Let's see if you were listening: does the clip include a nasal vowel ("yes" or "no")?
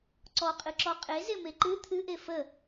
no